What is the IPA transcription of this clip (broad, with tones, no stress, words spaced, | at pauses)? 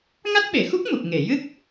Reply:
ŋa˦˥t̚ɓe˨˩˨xu˦˥k̚ mu˨˩p̚ ŋe˨˩˨jɨ˦˥k̚